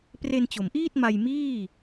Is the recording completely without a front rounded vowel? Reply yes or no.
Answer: yes